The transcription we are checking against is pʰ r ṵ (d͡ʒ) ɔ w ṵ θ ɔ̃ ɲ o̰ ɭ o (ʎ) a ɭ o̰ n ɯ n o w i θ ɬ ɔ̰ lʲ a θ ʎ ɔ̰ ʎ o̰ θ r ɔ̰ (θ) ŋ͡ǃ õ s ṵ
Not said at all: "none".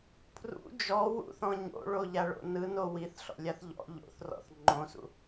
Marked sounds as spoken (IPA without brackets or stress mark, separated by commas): d͡ʒ, ʎ, θ